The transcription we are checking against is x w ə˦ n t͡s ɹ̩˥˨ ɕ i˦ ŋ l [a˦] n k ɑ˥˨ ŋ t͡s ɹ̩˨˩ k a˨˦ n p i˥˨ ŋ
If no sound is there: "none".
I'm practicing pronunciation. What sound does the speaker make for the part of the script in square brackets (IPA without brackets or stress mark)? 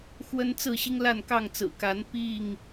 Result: a˥˨